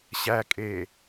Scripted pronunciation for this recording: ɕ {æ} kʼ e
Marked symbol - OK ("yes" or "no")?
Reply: yes